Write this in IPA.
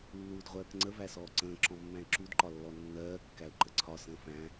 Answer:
lː uː d ʁʷ ɜː k ŋ͡ǀ ə v æ s ɔː ǀ ə̃ː ǁ ɔ̃ mː æ̃ ɪ̯ ǁ u d ǃ ɒ lː ɔ nː ɜː kː æ ʊ̯ ǃ ə ǀʰ ɒ s ə̃ː f æ̃

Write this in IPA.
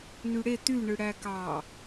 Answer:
n y ɽ e t̪ y ɳ ɯ ɽ æ k ɑ

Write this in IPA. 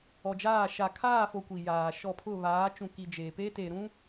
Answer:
ɔ˨ d͡ʒ aː˦˨ ʃ a˨ kʰ aː˦˨ f o˨ kʷ i˨ j aː˨ ʃ ɔ˦˨ pʰ ʊ˦˨ β aː˨˦ t͡ʃ ũ˨ k i˨ d͡ʒ eː˨ p e˦ t e˨ ɾ ũ˦

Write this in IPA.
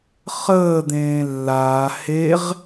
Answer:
χ əː d̪ ẽː lː aː h e ʁ

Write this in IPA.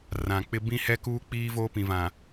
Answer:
r ã˨ k͡p ɪ˦ b ĩ˦ h ɛ˦ k uː˦ k͡p iː˦ v oː˦ p ĩ˨ v ã˨

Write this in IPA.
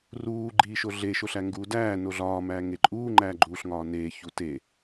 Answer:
r uː ɡ͡ǃ iː ʃ o ɮ e ʃ o ɬ æ ŋ ɡ uː d æː n o ɮ ɒː m æː ŋ e ǃʼ uː ŋ͡ǃ æː ɡ͡ǃ uː ɬ ŋ ɒː n eː ç u t e

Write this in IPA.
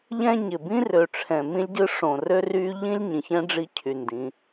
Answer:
ʎ ɛ̃˦ ɲ ɪ˨ b ĩ˦ r ø˨ ʈ͡ʂʰ ɛ̃˨ m ĩ˦ lʲ ɟ ɯ˦ ʂ õ˨ r ø˦ r y˦ ʎ ĩ˦ lʲ ɲ ĩ˨ ç ɛ̃˦ ɖ͡ʐ i˦ cʰ y˨ n d ĩ˨˦

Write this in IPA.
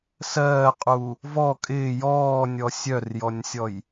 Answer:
s ɜː qʼ u | v ɔ kʼ ɪː j ɔː nʲ ɔ sʲ œ r j ɔ nʲ sʲ ɔ j

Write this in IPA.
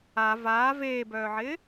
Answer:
a v aː v eː b œː ʕ ɪː

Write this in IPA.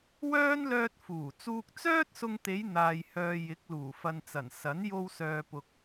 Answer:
w œː˥ n l œː˧ t̚ f uː˨˩ t͡s uː˧ k̚ t͡s œː˥ t̚ s ʊ˧ ŋ t̪ e˨˧ j n̪ aː˨ j h œː˨ j ɪ˨˥ k̚ l uː˨˩ f ɐ˨ n t͡s ɐ˨˩ n s ɐ˨˥ n j o˧ w s œː˨ p ʊ˨ k̚

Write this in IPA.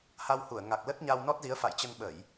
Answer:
h a˧ w h u˧˩ ə̯ ŋ a˨˩ k̚ l ə˦˥ t̚ ɲ a˧ w n ɔ˦˥ t̚ z i˨˦ ə̯ f a̰˧˨ j t͡ɕ ə˧ n ɓ ə˧˩˨ j

